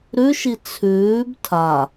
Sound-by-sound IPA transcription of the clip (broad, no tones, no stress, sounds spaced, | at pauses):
ɾ ʉ ʃ i t͡sʰ ʉː b tʰ a